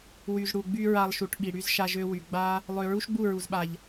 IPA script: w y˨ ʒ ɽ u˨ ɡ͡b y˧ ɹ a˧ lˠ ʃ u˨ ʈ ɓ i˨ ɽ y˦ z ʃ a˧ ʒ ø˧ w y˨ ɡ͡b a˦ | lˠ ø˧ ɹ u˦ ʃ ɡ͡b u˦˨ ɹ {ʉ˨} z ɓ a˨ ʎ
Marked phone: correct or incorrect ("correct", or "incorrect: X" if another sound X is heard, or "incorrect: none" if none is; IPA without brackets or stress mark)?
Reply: incorrect: u˨